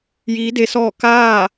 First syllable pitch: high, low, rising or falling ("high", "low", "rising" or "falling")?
rising